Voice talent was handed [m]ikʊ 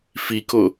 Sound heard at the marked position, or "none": f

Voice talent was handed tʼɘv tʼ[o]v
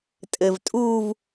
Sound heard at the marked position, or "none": u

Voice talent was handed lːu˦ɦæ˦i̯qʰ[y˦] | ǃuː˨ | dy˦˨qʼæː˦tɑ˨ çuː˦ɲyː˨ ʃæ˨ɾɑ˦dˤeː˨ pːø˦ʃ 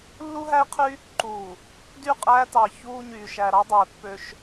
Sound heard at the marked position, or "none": y˦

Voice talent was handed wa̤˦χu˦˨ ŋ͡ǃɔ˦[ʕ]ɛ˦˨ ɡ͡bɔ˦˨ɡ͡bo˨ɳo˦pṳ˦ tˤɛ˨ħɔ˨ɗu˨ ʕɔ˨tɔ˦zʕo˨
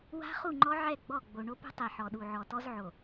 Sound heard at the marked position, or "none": ʕ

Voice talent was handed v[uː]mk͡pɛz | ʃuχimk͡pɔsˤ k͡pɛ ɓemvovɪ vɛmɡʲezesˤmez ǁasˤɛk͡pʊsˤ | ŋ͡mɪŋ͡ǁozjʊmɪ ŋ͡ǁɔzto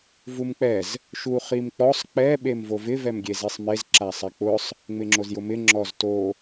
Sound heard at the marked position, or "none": u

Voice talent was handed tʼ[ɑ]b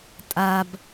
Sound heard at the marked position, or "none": a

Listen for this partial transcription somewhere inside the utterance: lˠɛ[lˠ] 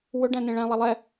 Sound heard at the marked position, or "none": none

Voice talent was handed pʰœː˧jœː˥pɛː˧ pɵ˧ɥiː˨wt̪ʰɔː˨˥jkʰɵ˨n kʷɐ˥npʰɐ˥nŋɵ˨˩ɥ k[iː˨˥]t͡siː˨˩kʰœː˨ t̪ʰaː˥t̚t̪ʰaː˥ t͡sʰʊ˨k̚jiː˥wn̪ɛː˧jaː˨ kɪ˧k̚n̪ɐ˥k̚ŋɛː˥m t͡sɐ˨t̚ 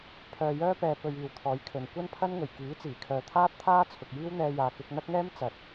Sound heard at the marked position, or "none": iː˨˥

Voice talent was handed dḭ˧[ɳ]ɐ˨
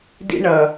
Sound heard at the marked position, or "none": ɳ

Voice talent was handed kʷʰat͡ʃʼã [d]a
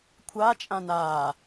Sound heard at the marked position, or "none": n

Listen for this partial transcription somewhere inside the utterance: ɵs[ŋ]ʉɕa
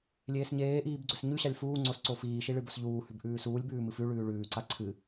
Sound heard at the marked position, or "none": ɲ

